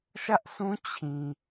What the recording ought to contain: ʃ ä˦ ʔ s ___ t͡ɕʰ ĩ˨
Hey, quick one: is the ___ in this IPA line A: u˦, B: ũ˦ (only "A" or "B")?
B